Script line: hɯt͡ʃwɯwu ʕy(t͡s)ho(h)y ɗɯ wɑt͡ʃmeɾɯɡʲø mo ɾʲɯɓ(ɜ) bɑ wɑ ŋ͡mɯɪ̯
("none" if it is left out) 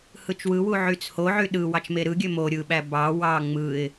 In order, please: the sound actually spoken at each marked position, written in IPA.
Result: t͡s, ʕ, æ

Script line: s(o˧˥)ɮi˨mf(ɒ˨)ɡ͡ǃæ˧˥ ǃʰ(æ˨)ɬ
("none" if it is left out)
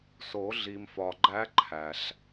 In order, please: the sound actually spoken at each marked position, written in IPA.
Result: o˨˩˦, ɒ˨, æ˨

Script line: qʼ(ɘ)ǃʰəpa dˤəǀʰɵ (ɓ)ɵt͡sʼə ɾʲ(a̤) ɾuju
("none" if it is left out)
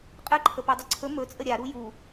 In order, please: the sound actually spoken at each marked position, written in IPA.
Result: ɘ, m, a

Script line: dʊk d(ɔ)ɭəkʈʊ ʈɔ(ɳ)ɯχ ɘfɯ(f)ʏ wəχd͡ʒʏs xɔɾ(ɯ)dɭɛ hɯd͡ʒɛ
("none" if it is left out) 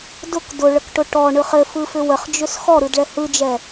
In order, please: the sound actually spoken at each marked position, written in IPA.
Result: ʊ, ɳ, f, ɯ

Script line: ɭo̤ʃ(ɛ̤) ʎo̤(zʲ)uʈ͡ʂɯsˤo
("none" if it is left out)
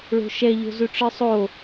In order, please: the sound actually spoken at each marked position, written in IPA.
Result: ɛ, z

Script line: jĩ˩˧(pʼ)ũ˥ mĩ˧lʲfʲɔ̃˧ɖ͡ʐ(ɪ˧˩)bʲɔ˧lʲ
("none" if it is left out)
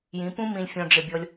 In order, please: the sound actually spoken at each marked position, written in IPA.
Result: p, ɪ˧˩

